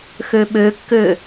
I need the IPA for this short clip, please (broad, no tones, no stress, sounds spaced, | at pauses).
x ø ɓ ø kː ø